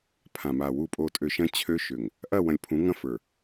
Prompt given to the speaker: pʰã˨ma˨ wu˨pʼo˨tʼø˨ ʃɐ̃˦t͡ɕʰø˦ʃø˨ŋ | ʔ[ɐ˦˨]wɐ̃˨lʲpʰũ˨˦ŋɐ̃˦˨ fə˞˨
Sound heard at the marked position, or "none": ɐ˦˨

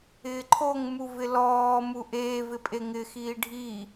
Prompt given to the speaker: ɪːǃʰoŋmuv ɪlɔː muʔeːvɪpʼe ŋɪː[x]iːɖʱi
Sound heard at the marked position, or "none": x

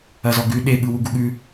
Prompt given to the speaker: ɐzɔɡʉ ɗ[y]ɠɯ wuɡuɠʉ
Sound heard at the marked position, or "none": e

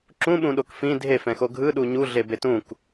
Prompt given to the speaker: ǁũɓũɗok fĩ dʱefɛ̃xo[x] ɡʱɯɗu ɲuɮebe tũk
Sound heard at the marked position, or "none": none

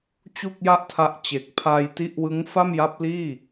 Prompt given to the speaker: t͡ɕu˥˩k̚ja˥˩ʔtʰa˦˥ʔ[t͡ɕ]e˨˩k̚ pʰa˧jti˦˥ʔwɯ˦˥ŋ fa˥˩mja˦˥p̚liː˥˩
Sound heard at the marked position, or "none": t͡ɕ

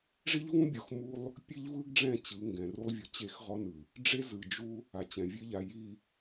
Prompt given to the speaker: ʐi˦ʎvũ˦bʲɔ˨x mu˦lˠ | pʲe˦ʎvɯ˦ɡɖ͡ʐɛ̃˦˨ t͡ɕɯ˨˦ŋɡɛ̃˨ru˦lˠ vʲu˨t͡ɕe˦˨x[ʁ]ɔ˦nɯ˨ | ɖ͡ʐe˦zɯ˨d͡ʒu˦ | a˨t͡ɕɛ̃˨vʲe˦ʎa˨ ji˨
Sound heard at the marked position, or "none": ʁ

